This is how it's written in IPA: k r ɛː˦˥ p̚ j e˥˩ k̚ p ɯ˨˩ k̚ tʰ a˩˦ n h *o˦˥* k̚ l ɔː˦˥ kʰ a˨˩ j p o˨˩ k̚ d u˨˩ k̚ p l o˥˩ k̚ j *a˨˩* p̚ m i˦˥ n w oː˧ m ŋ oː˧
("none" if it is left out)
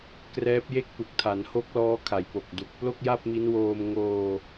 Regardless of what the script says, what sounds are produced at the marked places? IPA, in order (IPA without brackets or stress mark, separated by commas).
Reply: o˦˥, a˥˩